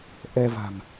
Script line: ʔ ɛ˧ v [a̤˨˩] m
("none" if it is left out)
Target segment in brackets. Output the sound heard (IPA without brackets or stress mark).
a̤˨˩